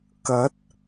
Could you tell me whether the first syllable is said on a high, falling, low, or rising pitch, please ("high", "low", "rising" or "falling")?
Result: rising